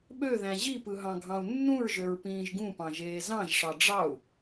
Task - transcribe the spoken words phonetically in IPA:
ɓ ø ð æ̃ ʑ i p ɯ ɦ ɑ̃ ɡʱ ɑ̃ u̯ nː ũ ɹ ʒ ø ɹ p ĩː ʒ ɡ ũ p ɑ̃ ʒ eː z ɑ̃ ʒ ʂ ɑ ɖ͡ʐ ɑ u̯

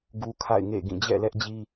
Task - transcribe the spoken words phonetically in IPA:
ɡ u˦ kʰ a̰˦˨ ɪ̯ ŋ ḛ˦˨ ɡ ĩ˦˨ d͡ʑ ɛ̰˦˨ l ɛ˦ ʔ d͡ʑ i˦

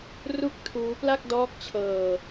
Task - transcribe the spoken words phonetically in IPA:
r u˦˥ k̚ tʰ uː˦˥ p l a˥˩ k̚ d ɔː˦˥ k̚ t͡ɕʰ ɤː˧

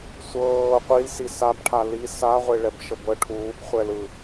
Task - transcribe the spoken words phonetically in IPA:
sʷ ɤː qʷ i l s i s a b ʈʰ a l i s a ʁʷ e ɭ ɛ b ʃ ɤ b ɤ ʈʰ uː b χʷ ɛ l ɯ

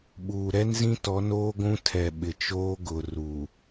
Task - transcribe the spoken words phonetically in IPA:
ɓ uː˨ ɾ ɛ˦ n z ĩ˦ t ɔ˨˦ n oː˦ ɡʷ ũ˦ tʰ ɛ˨ ɓ ɪ˨ t͡ʃ oː˦ ɡ ʊ˨ r uː˨

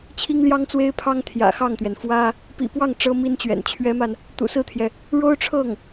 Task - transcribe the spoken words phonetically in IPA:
t͡ɕʰ i˥ ŋ l j ɑ˥ ŋ t͡s w e˥ ɪ̯ pʰ ɑ˥ ŋ t̪ʰ j ä̰˨˩ x ɑ˥˩ ŋ t̪ ɥ ɛ˩ n f w ä˥ | p ḭ˨˩ p w ɑ˥˩ ŋ ʈ͡ʂ ɤ˥ m i˥ n t͡ɕ ɥ ɛ̰˨˩ n t͡ɕʰ ɥ ɛ˧˥ m a˧ n | t̪ ṵ˨˩ s ɹ̩˥˩ t̪ʰ j ɛ˩ | ɻ o˥ ʊ̯ ʈ͡ʂʰ ɤ˥˩ ŋ

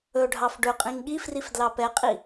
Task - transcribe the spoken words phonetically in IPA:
ɵ ɖʱ ɑ f ɖ ɵ qʼ ĩ ŋ ɠ i f r i f d l ɑ p ɛ qʼ i

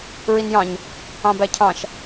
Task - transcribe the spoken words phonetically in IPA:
ɹ i n j ɑ̃ ɲ | ɑ̃ b æ cʰ ɑ̃ ʃ

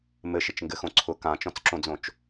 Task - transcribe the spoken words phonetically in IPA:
m ɘ ʃ ɪ t͡ʃ ŋ ɡ ɘ x õ ǀʰ ʊ k ã t͡ʃ ɔ̃ t͡s ǁ õ d͡z õ t͡ʃ

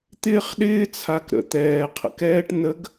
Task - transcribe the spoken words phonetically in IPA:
t̪ ɪː˦ χ ɗ ɪː˦ t͡sʰ a˨ k ɾ ə̰˨ t̪ ɛː˨ qʰ ə̰˨ k ɛː˦ ʈ n ə˨˦ ɡ

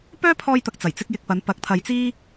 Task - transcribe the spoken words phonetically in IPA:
p œː˥ pʰ ɔː˧ j t̪ ɐ˨ k̚ t͡s ɐ˨˩ j t͡s ɪ˧ k̚ j ɪ˨ k̚ p ɐ˨˧ n p ɐ˨˥ k̚ t̪ʰ ɐ˨ j t͡s iː˥

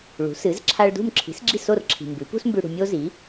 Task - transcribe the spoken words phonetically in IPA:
ɭ ṳ˩˥ s ɨ˩˥ z ǁʰ a˧ ɭ d ṳ˥˩ m ǁʰ i̤˩˥ s ɡ͡ǁ i˥˩ s o˥˩ r ǁʰ i̤˩ m b ʉ˩˥ p ṳ˥ s m b ʉ˧ ɽ ṳ˧ mʲ o˥ z i˩˥

